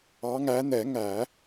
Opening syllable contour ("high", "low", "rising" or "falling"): rising